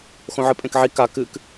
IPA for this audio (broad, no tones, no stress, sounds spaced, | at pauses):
x õ ʕ ɨ pʼ ẽ k ʕ i k a k ɨ k